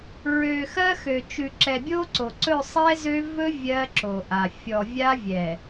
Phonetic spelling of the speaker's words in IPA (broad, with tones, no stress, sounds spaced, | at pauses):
ɹ ø˨ x ɜ˦ x ø˨ t͡ʃ ʉ˨ ǁ ɛ˨ bʲ o˦ ǀ o˨ ǀ ɵ˦˨ sˤ ɛ˦ z ø˦ v ɵ˦ vʲ ɜ˦ ǁ o˨ ʔ a˨ fʲ ɔ˨ vʲ a˦ vʲ ɛ˨